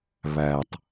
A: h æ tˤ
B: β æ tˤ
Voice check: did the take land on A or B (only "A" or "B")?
B